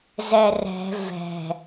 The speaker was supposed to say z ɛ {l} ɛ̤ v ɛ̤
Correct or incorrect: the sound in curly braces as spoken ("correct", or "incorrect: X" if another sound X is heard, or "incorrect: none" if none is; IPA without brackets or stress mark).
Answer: incorrect: r